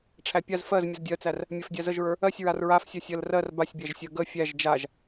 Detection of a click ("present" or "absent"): absent